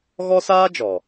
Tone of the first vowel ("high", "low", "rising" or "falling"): high